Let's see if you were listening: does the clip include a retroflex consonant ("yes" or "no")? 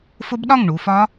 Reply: yes